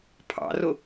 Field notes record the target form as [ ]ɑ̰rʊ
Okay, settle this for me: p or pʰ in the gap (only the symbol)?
pʰ